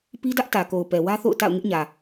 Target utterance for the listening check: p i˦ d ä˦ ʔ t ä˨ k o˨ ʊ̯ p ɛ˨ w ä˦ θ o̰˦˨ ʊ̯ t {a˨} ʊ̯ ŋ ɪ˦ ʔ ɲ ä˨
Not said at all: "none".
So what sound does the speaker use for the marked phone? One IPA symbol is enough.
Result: a̰˦˨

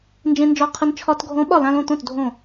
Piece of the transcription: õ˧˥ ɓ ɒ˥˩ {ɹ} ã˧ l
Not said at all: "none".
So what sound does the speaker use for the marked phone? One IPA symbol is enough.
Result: l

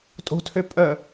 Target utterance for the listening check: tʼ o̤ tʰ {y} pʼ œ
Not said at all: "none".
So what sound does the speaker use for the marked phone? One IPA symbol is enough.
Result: ø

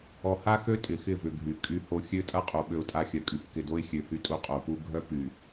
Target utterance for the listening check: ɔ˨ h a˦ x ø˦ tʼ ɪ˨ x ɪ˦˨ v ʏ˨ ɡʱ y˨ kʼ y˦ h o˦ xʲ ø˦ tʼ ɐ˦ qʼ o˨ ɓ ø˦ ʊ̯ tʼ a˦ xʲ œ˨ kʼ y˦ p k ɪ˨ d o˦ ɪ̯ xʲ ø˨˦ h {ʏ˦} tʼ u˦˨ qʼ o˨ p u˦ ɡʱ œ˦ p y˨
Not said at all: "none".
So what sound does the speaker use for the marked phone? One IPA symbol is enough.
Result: y˦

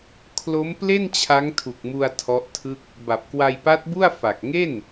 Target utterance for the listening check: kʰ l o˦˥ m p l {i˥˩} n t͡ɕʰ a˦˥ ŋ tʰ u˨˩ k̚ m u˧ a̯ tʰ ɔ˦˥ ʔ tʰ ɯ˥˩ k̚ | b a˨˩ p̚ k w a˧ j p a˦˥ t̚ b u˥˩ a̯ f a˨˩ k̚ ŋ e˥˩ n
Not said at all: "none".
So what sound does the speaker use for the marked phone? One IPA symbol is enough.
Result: e˥˩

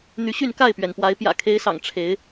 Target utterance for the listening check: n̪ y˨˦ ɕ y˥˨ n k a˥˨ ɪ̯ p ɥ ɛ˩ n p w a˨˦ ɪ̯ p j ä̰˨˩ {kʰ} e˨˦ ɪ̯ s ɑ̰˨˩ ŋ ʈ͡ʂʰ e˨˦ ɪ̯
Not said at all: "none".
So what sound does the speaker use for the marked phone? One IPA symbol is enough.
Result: kʰ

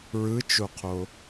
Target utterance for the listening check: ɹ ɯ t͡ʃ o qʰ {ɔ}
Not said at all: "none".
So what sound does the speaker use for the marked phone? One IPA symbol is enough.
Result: o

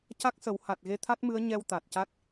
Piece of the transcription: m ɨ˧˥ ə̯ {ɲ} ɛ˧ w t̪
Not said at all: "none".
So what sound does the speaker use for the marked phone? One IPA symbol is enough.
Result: ɲ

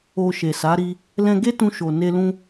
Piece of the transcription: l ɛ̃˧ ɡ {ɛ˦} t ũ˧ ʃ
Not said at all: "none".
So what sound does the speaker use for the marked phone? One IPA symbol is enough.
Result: e˦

